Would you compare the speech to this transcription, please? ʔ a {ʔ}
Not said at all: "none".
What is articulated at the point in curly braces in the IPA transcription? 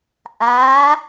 none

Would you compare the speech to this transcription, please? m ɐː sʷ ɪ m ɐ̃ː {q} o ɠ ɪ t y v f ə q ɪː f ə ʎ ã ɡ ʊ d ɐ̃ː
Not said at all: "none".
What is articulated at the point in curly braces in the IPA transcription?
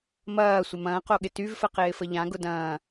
q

